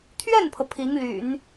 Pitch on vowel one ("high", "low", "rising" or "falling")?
falling